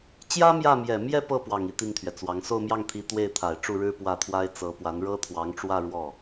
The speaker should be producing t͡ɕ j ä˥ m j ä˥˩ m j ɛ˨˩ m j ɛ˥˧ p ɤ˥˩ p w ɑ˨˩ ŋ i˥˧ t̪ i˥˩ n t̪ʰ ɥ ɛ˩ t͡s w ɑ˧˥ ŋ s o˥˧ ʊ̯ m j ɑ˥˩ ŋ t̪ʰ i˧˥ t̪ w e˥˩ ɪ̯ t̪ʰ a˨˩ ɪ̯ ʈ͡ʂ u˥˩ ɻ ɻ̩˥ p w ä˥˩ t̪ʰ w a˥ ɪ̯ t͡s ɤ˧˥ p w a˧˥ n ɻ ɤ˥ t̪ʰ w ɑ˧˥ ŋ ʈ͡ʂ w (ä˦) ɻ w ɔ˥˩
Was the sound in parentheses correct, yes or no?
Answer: no